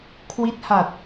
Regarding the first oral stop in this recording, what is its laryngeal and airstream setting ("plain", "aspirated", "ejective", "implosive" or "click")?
aspirated